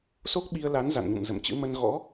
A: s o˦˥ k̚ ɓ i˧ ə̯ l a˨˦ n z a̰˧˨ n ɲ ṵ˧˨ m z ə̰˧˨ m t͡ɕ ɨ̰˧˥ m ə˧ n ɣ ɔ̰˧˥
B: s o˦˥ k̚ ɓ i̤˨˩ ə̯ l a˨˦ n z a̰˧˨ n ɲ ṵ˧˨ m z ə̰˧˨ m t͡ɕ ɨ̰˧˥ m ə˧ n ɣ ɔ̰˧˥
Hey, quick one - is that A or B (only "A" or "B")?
A